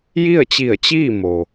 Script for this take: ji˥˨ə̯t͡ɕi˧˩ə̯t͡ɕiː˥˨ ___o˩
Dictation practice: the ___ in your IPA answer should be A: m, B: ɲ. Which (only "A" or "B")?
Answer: A